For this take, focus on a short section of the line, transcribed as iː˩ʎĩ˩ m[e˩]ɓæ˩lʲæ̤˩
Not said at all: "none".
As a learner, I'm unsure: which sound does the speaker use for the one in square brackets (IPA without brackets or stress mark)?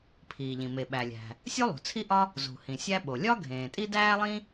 e˩